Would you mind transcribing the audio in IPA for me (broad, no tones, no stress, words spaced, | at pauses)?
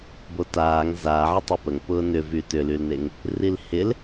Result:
botaːŋ zaːʕə tˤopəŋ pʊːnʏvy tʏlylneŋ | rilhɪl